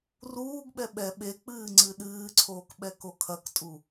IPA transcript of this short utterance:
r uː ɡ ɓ ɛ ɓ ɛ ɓ e k͡p ɨː ŋ͡ǀ ɨ ɗ ɨː ǀʰ oː k ɓ ɛ k o kʰ ɐ k tʼ u

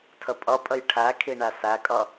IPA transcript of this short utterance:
tʰ ə pʼ ʌ pʼ ə j ʈʰ æ kʰ i ɳ æ s æ kʼ ʌ

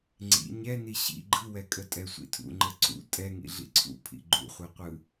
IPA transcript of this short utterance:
ŋ͡ǀ ḭ ɲ ɛ n i ɕ ḭ ɡ͡ǃ ɯ w ɛ kʼ ə tʼ ɛ sʷ ḭ tʰ ṵ ŋ͡ǃ ə ǀ ṵ tʼ ɛ ŋ ḭ ɮ ḭ ǀʰ ṵ pʰ ḭ ɡ͡ǃ ṵ χʷ ɛ qʷ ɯ

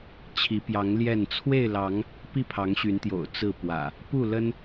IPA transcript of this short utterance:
t͡ɕʰ i˨˦ p j ɑ˨˦ ŋ l j ɛ˥˨ n t͡sʰ w e˥˨ ɪ̯ l ɑ˨˦ ŋ | p i˥˨ pʰ ɑ˨˦ ŋ ɕ y˨˦ n t̪ j o̰˨˩ ʊ̯ t͡s ɹ̩˥˨ p w ä̰˨˩ | p u˥˨ l ə˦ n

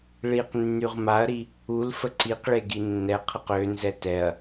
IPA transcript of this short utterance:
ɭ i q nː y ʁ m a ɐ̯ ɾ i | u l f ə ǀ i q ɭ e ɡ i nː ɛ qʰ ə q ø n z ɛ t ɛ ɐ̯

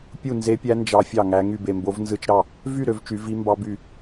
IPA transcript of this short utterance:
pʲ u˥˧ n z e˦˥ pʲ æ˦˥ n d͡ʒ ɑ˦˥ fʲ ɑ˥˧ ŋ æ˦˥ ŋ y˥˧ b e˥˧ m b o˦˥ v n z ɯ˦˥ t͡ʃ ɾ ɑ˥˧ | v y˥˧ ɾ ø˦˥ v t͡ʃ y˦˥ v i˦˥ m b ɑ˦˥ b y˥˧

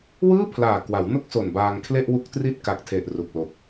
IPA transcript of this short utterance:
w ɯː˥˩ pʰ l aː˨˩ k w a˩˦ w n o˥˩ k̚ s o˨˩ n b aː˧ ŋ kʰ l e˥˩ ʔ w u˦˥ k̚ t r i˥˩ t̚ k a˨˩ k̚ tʰ e˨˩ ʔ r u˨˩ k̚ l o˨˩ k̚

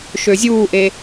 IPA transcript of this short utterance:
ʃ ø zʲ uː ʔ e

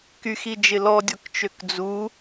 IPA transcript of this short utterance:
k y x i d͡ʒ ɪ l ɔ dʲ ɔ k t͡ʃ ø k d͡z u

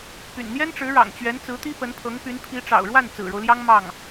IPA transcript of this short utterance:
p y̰˨˩ n n̪ j ɛ˥ n ʈ͡ʂ ɻ̩˧˥ ɻ ɑ̰˨˩ ŋ t͡ɕ ɥ ɛ˧˥ n t͡s ɹ̩˧˥ t̪ i˥ p ə˧˥ n pʰ ɤ˧˥ ŋ p y˧˥ n pʰ i˧˥ ʈ͡ʂ ɑ̰˨˩ ʊ̯ ɻ w a˥˩ n t͡s ɹ̩˨˩ ɻ o˦ ʊ̯ l j ɑ˥ ŋ m ɑ˥˩ ŋ

